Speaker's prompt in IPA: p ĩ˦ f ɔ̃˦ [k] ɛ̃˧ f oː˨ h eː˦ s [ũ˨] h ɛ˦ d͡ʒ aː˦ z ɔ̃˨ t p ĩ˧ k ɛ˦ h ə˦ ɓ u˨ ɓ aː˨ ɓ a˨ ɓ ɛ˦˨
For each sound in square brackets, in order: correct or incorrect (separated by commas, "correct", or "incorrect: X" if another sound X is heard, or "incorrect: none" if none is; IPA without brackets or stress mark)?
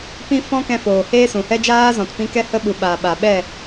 correct, correct